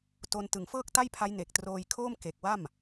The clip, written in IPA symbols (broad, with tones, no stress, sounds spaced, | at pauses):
t o˧ n t ɯ˨˩ ŋ f ɤː˥˩ k̚ t a˥˩ j pʰ a˦˥ j n e˨˩ k̚ t r oː˧ j kʰ oː˥˩ m k e˨˩ k̚ w a˥˩ m